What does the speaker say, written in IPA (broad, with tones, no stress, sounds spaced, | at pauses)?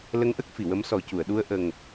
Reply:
l ə˧˥ ŋ ʔ ə˦˥ k̚ f i˨˩˨ w ə˧˥ m s ɔ˨˩˦ c u˨˩˨ ə̯ ɗ u˧ ə̯ ʔ ə˨˩ ŋ